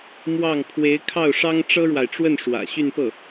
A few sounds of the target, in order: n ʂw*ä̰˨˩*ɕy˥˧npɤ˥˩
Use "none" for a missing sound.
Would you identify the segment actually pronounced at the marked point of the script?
ä̰˨˩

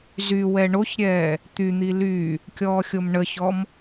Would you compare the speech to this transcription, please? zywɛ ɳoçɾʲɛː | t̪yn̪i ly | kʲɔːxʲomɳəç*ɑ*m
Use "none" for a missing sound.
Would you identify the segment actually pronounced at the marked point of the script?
ɔ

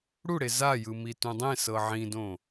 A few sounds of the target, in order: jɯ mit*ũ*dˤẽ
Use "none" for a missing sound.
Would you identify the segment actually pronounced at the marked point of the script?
ũ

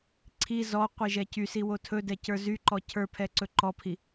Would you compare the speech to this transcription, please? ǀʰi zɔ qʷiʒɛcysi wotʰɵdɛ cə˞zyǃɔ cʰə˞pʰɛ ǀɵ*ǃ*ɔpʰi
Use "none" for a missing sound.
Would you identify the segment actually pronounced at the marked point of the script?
ǃ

